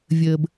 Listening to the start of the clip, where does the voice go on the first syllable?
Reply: low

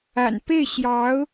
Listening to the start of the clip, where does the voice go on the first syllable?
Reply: low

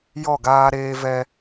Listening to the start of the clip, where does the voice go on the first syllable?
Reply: falling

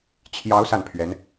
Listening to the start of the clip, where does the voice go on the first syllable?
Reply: rising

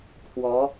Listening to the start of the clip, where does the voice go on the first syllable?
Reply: rising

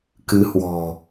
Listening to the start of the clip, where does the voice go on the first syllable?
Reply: rising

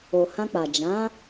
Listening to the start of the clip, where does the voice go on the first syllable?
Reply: low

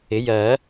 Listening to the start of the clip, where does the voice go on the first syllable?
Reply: rising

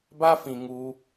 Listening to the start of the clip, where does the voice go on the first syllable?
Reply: high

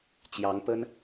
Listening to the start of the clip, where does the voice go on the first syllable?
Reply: rising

